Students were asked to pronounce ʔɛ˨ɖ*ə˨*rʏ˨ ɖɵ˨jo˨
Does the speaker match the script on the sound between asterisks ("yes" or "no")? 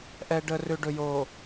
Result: yes